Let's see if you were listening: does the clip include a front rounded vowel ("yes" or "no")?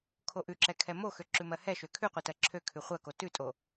yes